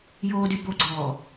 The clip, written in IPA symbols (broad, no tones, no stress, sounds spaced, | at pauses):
j oː d y b o ɡ͡ǀ ɔː